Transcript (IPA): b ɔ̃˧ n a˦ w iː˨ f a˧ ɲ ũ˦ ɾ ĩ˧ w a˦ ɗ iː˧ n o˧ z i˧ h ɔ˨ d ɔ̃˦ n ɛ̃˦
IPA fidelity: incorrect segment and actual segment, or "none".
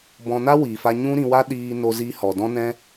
none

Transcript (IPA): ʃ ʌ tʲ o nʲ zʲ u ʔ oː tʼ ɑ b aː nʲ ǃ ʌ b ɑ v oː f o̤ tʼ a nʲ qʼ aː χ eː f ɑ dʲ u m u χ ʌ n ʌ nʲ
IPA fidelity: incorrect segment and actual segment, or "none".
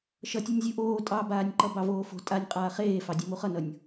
none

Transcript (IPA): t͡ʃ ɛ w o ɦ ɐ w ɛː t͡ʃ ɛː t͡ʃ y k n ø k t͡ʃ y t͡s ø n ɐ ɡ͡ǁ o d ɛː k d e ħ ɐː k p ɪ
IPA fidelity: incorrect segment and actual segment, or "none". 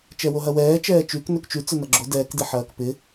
none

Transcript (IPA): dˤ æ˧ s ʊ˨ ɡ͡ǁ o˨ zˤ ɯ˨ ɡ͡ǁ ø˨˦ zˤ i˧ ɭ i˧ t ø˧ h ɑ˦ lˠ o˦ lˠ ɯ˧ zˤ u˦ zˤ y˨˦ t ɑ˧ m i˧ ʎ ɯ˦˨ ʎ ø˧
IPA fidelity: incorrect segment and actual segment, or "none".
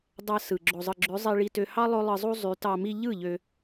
ʊ˨ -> ɯ˨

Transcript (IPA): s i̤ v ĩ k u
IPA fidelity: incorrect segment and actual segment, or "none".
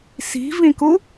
none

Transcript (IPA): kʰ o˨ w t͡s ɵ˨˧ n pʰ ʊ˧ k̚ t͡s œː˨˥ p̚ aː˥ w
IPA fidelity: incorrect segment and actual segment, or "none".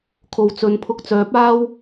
none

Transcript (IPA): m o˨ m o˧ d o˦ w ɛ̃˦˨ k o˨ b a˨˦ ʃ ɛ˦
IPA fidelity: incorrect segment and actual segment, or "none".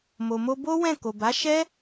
d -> b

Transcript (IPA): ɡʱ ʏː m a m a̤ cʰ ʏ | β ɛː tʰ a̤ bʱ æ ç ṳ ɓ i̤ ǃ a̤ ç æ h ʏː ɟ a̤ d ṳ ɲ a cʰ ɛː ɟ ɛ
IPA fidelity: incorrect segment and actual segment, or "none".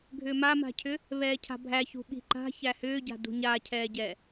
tʰ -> cʰ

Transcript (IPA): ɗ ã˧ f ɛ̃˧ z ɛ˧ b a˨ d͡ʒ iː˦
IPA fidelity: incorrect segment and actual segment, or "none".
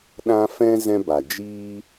ɛ˧ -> ɛ̃˧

